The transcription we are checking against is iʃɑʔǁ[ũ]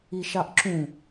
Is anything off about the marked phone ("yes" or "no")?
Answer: no